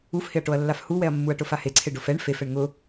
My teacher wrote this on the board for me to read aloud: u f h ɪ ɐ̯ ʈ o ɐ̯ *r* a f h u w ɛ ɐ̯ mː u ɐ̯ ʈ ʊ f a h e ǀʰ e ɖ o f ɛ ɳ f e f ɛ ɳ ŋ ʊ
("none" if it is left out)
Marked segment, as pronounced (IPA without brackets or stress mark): lː